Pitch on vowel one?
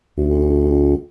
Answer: low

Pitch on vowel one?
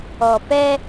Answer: low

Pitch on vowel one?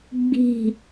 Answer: low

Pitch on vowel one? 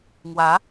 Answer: rising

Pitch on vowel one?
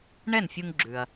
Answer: falling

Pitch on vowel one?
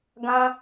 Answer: high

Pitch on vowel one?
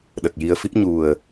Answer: low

